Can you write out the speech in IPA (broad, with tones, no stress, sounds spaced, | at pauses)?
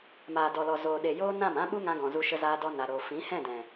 m aː˨ d ɔ˨ l ɔ˨ z oː˨ ɗ e˨ j oː˧ n ã˦˨ m ã˦ ɓ u˦ ŋ ã˧ ɡ ɔ̃˨ z u˧ ʃ ə˧ z aː˧ d ɔ˧ n a˨ ɾ oː˨ f ĩ˨˦ h ɛ̃˦˨ d ɛ̃˨